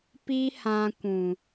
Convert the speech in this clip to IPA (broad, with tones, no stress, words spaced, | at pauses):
pi˦hã˧kʷũ˨